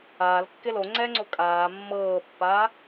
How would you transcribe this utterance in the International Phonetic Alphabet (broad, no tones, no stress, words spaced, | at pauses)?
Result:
aːlkːɪ loŋ͡ǀɛːŋ͡ǀo kʼaː mːɤːpːaː